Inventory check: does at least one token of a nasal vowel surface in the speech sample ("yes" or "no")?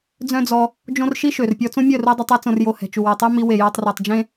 yes